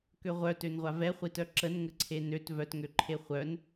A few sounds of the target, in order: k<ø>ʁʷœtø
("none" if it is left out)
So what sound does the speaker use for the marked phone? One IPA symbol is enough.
ø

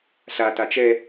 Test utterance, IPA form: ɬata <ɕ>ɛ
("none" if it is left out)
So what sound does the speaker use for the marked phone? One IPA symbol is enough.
t͡ʃ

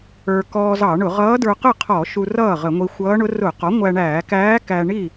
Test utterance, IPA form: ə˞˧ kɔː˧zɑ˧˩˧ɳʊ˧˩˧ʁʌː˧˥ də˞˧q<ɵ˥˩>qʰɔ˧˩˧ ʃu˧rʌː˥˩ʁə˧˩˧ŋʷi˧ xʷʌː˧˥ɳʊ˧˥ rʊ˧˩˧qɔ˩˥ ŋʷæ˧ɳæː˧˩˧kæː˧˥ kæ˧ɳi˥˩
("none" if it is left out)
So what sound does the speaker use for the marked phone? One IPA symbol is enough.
ə˥˩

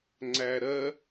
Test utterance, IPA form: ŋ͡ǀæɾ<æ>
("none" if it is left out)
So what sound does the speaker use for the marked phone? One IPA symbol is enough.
ɜ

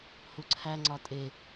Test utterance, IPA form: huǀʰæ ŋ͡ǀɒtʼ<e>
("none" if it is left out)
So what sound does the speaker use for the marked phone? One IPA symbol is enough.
e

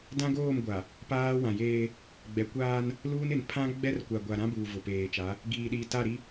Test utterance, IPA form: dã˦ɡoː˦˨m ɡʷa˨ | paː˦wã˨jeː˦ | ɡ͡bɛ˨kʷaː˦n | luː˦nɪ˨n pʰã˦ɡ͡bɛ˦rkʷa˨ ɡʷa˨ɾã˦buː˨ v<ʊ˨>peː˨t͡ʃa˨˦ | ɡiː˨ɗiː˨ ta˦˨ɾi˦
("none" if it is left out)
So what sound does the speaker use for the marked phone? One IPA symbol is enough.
ʊ˨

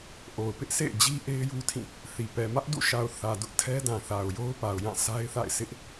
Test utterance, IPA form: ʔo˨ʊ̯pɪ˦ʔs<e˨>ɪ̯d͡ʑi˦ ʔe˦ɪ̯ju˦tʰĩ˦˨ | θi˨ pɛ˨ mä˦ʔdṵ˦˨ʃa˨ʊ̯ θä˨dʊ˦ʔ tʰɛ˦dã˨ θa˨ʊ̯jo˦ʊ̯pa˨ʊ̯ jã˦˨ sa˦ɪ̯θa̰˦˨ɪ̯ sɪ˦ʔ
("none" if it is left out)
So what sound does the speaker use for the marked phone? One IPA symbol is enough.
ḛ˦˨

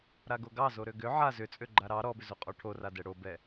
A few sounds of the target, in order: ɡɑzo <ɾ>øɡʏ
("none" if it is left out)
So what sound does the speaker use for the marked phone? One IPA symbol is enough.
ɾ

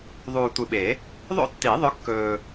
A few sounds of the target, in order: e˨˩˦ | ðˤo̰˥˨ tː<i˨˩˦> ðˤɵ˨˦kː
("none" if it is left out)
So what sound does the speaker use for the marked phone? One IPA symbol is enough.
i˨˩˦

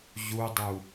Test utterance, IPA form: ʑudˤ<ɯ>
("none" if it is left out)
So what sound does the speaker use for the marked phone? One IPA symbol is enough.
u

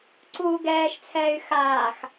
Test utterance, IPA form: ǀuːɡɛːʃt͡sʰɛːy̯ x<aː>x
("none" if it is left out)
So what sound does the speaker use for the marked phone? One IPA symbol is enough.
aː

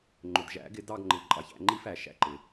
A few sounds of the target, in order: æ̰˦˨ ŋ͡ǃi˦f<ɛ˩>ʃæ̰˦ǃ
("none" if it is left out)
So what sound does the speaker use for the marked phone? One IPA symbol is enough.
æ˩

